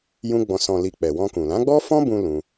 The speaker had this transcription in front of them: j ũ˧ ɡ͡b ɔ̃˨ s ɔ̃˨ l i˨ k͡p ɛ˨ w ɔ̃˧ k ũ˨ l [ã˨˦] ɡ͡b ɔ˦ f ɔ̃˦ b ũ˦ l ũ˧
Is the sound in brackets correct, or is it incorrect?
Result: correct